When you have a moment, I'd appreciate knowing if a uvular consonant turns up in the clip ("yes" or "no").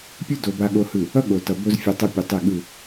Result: no